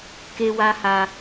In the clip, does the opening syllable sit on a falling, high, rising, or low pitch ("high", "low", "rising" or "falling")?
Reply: high